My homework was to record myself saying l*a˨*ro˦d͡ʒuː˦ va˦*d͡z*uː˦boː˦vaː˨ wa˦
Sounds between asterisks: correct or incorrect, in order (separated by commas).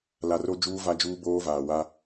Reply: correct, incorrect